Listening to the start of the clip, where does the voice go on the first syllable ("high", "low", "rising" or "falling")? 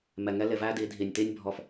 low